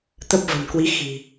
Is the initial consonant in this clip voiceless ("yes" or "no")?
yes